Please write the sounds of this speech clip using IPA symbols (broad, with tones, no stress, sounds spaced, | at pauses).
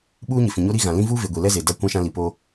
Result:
ɓ uː˦ ɲ ɪ˨ f ĩ˨ ɲ o˦ ɾ i˦ ɣ ã˨ l ĩ˦ v uː˦ v e˨ ɡʷ i˨ l ɛ˦ z e˨ d a˦ kʷ ã˦ ʃ ã˦ l i˨ p o˦